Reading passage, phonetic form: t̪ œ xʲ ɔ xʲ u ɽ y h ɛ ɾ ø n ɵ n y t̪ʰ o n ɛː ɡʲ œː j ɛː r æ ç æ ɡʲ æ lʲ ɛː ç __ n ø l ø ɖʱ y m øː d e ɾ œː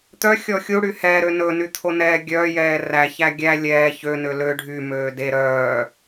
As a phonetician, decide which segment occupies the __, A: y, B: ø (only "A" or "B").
B